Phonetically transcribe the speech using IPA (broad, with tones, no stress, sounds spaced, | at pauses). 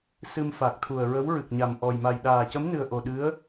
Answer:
s ɨ˧ m f a˨˩ k̚ t̪ʰ u˨˩ ə̯ ɹ ə˧˥ w ɹ ɨ˨˩ k̚ ɲ a˨˩ m ʔ ɔ˨˩ j m a˨˩ j ɗ aː˨˩ c ə˧˥ m n ɨ˨˩ ə̯ ʔ o˨˩ ɗ ɨ˧˥ ə̯